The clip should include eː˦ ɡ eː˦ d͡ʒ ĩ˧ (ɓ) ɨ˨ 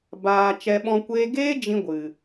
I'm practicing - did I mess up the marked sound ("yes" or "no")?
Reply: yes